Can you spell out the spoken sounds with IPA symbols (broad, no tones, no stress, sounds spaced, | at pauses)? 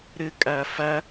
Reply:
ɾ ɪ kʼ æ f æ